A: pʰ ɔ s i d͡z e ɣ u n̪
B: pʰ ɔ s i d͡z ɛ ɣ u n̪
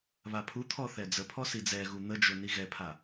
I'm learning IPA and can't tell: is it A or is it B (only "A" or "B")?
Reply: B